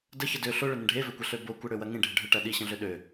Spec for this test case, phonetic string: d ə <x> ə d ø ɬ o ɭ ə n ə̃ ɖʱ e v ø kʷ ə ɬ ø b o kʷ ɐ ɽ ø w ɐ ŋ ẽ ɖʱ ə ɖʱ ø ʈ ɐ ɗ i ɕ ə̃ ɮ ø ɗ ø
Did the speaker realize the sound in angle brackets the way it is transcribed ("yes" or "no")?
no